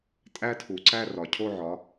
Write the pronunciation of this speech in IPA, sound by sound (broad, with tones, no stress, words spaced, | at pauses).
tʼæ˥˧tʰu˨˩ǀæ˥˧ rɒ˨˩cʰo˥˧ ʕɒ˨˦